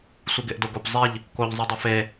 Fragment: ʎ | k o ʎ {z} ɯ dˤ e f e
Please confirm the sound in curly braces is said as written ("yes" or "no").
no